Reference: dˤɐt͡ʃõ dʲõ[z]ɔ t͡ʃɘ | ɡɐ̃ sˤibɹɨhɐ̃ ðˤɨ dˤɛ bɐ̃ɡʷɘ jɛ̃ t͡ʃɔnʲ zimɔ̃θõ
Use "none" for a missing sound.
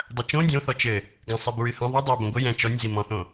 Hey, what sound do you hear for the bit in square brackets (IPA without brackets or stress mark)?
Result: θ